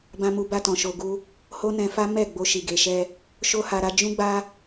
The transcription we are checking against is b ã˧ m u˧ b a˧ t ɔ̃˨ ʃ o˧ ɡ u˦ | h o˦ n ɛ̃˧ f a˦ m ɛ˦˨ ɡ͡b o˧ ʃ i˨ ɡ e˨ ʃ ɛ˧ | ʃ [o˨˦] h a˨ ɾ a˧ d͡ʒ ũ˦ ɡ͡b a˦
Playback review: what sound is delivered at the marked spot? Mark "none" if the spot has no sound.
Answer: o˧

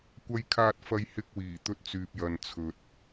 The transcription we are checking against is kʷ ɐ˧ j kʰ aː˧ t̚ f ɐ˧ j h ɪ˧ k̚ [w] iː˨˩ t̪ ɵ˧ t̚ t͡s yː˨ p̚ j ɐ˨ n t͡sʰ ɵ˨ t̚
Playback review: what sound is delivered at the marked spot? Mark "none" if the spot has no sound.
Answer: w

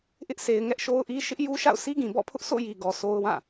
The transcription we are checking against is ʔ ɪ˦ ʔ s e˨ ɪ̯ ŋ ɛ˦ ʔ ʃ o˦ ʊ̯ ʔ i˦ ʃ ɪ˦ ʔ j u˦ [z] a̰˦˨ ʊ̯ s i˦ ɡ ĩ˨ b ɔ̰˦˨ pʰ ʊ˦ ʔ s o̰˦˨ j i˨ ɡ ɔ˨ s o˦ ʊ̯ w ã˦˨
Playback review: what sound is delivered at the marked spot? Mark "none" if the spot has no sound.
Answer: ʃ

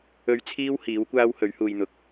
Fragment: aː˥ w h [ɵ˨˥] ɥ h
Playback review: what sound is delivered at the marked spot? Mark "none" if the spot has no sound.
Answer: ɵ˨˥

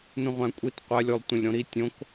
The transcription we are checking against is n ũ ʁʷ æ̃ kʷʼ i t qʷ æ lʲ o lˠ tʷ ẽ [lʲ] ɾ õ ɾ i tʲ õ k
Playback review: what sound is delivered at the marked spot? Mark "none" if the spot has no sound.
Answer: lʲ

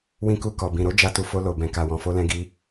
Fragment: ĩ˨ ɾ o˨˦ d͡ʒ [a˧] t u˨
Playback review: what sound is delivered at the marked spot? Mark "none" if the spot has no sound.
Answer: a˧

